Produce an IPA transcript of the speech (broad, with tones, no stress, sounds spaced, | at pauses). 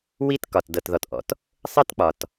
w i˦ t k ɒ˨ t d ɤ˨ t ð ɔ˨ t ʔ ɔ̰˨ t | sˤ ɯ˦ t k͡p ɒ˨ t